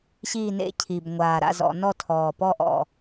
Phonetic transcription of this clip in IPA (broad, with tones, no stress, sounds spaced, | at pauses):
ɕ iː˥˨ n ḛ˥˨ cʰ i˨˩ b ŋʷ aː˨˩ ɾ a̰˥˨ z ɔ̰˧˩˧ n ɔ˥˨ tʰ ɔː˨˩ p ɔ˥˨ ʔ ɔ̰˨˩